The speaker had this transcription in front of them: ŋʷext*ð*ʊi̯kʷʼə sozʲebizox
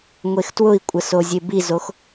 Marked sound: incorrect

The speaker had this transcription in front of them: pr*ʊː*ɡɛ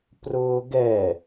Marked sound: correct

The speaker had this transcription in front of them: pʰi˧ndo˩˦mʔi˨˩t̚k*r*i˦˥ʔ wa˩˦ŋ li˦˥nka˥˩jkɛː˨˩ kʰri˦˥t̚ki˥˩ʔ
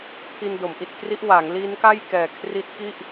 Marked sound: correct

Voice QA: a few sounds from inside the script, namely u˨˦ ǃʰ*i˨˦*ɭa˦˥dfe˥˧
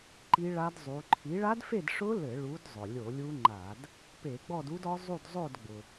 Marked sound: correct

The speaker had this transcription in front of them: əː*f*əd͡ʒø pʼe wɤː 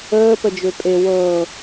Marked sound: incorrect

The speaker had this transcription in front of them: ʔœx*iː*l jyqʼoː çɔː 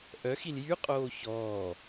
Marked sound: incorrect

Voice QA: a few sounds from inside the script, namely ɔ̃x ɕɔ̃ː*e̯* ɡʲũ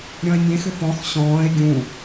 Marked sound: correct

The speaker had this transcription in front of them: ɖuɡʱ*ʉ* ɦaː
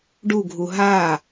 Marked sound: incorrect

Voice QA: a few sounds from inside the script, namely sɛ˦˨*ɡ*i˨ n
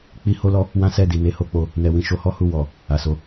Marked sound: incorrect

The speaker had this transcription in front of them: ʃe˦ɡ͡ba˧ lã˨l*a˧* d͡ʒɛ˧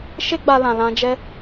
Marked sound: incorrect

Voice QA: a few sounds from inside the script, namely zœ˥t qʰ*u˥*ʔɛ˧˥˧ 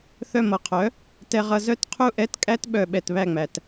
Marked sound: correct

